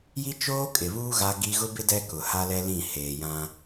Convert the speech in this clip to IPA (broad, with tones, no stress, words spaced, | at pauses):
ji˦t͡ʃoː˦kʼɪ˨βuː˦ ɣa˦ɡi˦ ɣʊ˦bɪ˦ dɛ˦ kʊ˨ha˦lɛ˦lĩ˦˨ heː˨jã˦